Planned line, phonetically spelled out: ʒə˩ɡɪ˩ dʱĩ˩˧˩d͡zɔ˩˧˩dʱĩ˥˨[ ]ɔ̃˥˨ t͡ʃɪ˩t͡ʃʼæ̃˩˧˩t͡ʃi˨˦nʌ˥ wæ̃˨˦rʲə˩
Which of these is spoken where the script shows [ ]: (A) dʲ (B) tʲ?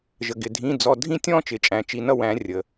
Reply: B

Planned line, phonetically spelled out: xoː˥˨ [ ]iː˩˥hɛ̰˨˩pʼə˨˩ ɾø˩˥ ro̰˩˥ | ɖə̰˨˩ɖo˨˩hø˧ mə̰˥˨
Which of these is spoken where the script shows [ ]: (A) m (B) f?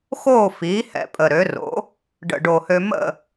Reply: B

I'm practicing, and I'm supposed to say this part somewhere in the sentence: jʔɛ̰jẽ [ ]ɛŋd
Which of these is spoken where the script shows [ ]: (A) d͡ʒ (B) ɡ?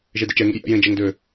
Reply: A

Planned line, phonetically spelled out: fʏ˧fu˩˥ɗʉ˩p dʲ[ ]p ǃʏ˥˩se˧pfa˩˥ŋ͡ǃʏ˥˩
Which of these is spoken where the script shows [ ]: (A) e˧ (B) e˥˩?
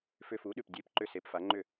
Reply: B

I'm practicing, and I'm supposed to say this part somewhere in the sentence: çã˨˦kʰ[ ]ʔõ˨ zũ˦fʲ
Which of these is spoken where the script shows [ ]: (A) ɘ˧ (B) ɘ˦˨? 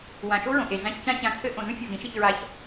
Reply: A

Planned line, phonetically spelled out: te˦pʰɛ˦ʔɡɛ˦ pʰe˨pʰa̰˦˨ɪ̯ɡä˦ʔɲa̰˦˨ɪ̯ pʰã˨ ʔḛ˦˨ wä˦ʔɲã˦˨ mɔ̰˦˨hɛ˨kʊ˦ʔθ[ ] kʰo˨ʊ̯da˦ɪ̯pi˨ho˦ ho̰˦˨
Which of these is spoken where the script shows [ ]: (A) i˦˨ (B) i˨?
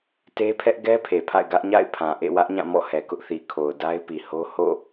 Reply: B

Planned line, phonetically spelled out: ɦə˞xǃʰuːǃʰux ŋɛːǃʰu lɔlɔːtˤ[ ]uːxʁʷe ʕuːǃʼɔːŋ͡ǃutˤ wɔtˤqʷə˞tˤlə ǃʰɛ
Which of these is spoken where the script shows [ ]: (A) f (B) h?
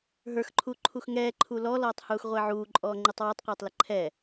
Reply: B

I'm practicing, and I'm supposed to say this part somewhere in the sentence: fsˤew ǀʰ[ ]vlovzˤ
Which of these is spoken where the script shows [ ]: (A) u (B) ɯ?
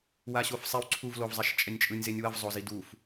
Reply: A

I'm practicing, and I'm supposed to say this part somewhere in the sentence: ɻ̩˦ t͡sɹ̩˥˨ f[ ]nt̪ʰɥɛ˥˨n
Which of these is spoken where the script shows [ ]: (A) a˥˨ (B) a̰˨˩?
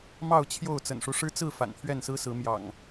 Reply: B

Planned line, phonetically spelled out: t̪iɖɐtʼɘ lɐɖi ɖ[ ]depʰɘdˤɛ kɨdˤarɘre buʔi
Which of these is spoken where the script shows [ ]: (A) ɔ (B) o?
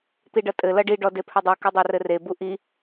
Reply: A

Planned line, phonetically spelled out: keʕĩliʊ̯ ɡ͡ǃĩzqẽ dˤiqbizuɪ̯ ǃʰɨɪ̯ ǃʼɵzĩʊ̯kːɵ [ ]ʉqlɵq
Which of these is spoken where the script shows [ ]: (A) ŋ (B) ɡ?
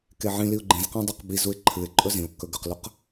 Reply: B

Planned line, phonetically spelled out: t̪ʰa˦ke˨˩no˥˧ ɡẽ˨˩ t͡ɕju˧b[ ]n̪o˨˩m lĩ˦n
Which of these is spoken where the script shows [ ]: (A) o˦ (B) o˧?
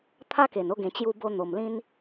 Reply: B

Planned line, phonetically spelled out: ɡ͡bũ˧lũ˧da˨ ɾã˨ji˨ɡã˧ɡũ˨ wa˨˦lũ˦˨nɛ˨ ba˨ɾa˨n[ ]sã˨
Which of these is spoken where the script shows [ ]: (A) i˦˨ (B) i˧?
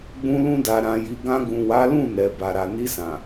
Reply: B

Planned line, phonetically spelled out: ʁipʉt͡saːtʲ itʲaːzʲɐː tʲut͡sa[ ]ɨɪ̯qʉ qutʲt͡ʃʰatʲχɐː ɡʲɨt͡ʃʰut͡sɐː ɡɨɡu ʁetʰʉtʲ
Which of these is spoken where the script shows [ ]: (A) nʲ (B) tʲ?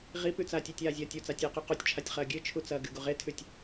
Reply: B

